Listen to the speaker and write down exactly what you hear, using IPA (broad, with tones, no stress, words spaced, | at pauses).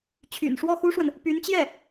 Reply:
t͡ɕʰy̰˨˩nʂwɔ˥˩xu˥ʂwə˨n | py˧˥nt͡ɕjɛ˥˩